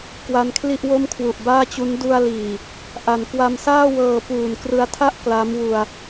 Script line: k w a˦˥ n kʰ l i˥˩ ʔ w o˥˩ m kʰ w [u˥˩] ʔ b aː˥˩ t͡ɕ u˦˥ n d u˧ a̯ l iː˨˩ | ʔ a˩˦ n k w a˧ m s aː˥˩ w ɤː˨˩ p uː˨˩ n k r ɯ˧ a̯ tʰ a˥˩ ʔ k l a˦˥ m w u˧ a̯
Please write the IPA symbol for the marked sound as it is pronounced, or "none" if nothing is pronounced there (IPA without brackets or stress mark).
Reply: u˨˩